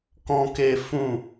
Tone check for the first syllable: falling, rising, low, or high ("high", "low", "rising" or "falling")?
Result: high